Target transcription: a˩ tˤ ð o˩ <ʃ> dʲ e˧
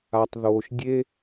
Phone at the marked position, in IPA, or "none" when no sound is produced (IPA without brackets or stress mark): ʃ